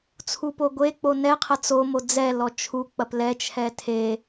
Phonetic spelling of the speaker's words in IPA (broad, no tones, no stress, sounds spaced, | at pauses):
t͡sʰ u p o ɡʷ e k͡p o n ɛ qʰ ɐ t͡s o m o d͡z ɛ l ɔ t͡ʃʰ u k͡p ɐ p l ɛ t͡ʃʰ ɛ tʰ e